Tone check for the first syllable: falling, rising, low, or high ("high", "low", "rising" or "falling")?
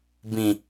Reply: high